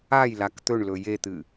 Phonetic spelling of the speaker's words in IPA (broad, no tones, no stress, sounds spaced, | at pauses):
a j l a k t̪ ɵ ɳ l ɵ j e t̪ ɨ